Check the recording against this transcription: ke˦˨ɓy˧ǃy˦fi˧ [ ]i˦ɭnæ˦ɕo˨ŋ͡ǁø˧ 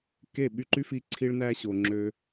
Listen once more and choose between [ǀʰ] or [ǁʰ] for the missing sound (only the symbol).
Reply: ǀʰ